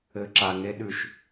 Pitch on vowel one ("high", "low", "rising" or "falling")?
low